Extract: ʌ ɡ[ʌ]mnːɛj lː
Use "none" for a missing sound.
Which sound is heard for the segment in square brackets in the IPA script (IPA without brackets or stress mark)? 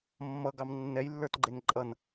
ɑ